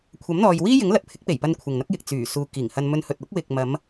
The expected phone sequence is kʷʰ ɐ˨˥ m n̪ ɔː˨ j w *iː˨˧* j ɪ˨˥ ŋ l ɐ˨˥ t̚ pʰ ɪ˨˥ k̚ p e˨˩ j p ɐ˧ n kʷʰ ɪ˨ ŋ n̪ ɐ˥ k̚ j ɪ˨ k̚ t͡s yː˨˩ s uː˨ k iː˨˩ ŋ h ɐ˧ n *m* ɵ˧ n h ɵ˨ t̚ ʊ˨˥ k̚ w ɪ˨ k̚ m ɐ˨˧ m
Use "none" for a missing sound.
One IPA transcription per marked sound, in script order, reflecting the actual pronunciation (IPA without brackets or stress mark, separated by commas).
iː˥, m